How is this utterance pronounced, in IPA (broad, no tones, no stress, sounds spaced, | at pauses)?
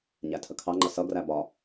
ɲ æ tʰ ə kʰ ɑ ŋ͡ǃ ʌ s ʌ ɡ r æ b ɒ